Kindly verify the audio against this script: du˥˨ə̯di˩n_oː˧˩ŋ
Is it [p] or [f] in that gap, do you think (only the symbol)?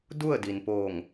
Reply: p